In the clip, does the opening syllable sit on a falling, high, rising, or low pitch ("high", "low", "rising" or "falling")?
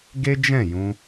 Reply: high